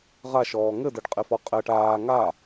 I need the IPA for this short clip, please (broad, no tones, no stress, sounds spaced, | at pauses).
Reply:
ʁ a ʃ ɔː ŋ ɘ d ɘ ɖ qʼ e f ɔ qʼ ɛ ʈ aː ŋ a